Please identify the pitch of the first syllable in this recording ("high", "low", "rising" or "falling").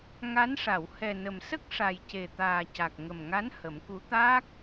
rising